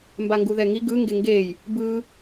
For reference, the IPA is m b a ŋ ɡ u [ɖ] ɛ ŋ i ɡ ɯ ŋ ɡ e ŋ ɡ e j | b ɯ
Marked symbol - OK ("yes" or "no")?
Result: no